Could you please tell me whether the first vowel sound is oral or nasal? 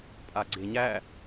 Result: oral